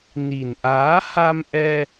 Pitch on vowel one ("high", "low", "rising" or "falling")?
low